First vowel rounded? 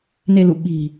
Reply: no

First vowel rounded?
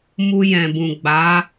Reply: yes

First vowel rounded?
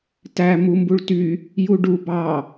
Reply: no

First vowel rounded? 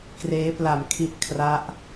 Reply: no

